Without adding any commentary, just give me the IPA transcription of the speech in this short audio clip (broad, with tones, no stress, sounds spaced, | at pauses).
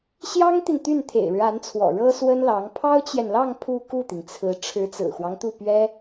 ɕ j ɑ˥ ŋ t̪ i˨ n t̪ y˥˩ n t̪ʰ ḛ˨˩ ɪ̯ ɻ ɻ̩˦ a˧˥ n t͡sʰ w ɔ̰˨˩ ɻ ɤ˥ s w ə˥ n l ɑ˧˥ ŋ pʰ ɑ˥ ʊ̯ t͡ɕ j ɛ˨ n l ɑ˥˧ ŋ pʰ u˥˧ k u˥˩ t̪ i˩ ŋ t͡sʰ ɹ̩˧˥ ʈ͡ʂʰ ɻ̩˧˥ t͡s ɹ̩˨˩ x w ɑ˦ ŋ t̪ u˥˩ p ɥ ɛ˥